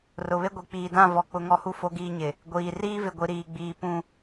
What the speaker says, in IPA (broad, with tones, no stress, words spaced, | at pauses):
rʊ˨βe˦ ɡʷi˨ k͡piː˨dã˦˨vɔ˨ k͡pʊ˦˨ŋɔ˦hu˦ fo˦ɡiː˦ɲɪ˨ | ɡʷiː˨ riː˦vɪ˨ɡʷi˨ ɾiː˨ɡ͡biː˨ pũ˦